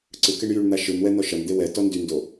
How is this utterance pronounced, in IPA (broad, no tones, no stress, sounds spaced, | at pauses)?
ǀ ɯ k e ɳ j y ɳ n̪ a ʃ ɯ n w ɛ n̪ ɔ ʃ ɐ n d̪ e w ɛ t ɔ n d y n d o